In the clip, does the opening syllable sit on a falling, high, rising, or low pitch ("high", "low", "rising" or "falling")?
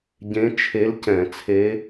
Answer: rising